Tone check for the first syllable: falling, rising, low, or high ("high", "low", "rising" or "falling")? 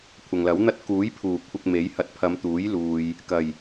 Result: low